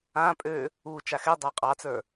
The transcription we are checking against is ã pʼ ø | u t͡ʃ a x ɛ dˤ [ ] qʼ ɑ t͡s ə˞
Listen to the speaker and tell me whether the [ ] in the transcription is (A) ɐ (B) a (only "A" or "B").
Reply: B